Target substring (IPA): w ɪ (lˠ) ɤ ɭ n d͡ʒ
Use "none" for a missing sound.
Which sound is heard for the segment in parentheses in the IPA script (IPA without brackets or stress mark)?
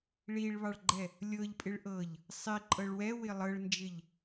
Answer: lˠ